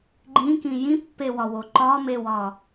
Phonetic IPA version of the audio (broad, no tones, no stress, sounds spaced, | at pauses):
ɡ͡ǃ ĩ k ĩ j ĩ pː e w ɒ w o ǃ ɒ m e w ɒ